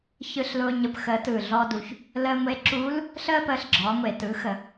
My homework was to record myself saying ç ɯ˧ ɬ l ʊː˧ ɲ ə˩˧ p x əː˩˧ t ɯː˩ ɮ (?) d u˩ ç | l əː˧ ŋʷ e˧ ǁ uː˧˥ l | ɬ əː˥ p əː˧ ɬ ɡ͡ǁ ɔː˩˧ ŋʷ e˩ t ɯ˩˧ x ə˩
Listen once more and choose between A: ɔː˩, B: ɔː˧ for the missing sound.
B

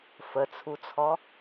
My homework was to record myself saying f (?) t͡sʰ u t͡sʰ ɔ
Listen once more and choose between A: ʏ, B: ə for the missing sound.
B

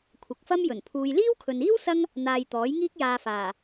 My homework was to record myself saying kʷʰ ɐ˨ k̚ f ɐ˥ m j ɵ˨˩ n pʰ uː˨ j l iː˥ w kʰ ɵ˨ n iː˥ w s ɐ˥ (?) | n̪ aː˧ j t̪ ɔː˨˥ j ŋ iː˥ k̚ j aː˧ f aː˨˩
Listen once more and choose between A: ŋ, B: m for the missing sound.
A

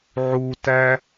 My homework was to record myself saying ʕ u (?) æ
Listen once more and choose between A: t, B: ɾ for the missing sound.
A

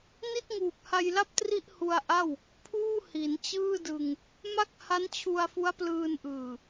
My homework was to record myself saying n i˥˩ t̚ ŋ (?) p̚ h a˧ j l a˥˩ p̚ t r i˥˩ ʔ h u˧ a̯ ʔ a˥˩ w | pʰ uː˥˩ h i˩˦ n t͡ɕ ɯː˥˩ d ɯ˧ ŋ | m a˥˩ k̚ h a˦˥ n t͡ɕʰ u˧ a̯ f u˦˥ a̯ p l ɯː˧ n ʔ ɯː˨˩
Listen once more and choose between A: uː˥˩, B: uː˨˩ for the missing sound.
B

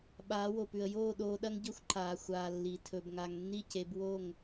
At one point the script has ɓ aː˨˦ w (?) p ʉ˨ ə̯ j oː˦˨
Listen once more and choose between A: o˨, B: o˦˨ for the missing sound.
A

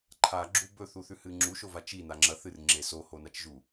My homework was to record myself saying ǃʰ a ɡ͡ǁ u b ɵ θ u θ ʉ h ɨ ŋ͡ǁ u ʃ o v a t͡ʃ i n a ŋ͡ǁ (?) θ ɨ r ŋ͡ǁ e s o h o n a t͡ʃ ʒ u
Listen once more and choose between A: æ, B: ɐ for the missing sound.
B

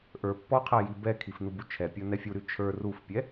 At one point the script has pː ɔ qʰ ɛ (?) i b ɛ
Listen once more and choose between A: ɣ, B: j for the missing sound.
B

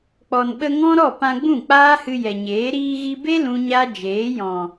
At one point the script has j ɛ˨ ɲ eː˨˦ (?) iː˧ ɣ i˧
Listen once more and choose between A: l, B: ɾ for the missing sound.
B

